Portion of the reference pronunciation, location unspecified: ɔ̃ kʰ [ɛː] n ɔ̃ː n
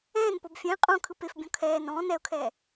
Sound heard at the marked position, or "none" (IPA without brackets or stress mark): ɛː